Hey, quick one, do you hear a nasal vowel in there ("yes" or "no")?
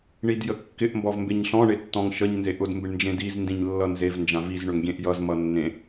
yes